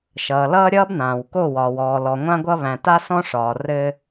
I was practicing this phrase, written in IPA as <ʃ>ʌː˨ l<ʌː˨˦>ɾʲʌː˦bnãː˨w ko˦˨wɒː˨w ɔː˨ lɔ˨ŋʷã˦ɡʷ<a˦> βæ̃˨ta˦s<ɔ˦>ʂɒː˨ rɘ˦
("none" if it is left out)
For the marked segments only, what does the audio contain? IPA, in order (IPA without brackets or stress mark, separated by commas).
ʃ, ʌː˦, ʌ˦, ɔ̃˦